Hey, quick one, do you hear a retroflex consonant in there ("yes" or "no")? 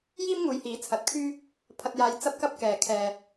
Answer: no